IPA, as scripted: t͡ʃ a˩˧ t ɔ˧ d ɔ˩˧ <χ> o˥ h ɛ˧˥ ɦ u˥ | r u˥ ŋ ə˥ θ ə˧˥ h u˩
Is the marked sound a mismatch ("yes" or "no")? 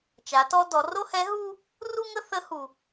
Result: yes